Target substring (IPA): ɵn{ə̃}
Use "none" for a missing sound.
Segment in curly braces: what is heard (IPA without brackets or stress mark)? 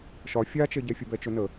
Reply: ə